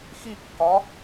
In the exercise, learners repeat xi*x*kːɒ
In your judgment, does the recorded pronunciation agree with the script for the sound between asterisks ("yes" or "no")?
no